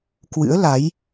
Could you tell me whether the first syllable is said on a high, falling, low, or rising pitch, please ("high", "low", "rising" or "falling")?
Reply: rising